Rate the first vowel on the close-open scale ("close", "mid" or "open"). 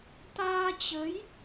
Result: open